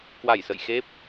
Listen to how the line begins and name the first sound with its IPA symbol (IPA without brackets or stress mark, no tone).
k